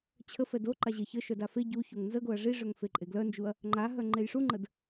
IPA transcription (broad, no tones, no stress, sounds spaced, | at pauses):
t͡ɕʰ ə f ɛ d o ǃ a ʑ e ç ə ʃ œ d a f e ɟ u ç o ŋ n z ə ɡ o ɐ̯ ʐ i ʐ œ ŋ f e ǃʼ e ɡ l œ n d͡ʒ u ɐ̯ | ŋ͡ǃ a ɦ œ ŋ͡ǃ e j ʂ u ŋ͡ǃ ə d